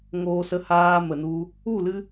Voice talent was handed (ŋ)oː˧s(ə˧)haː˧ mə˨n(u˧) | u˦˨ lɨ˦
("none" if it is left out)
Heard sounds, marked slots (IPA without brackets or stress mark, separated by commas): ŋ, ə˧, u˧